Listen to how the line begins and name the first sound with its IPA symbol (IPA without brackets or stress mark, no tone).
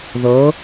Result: ð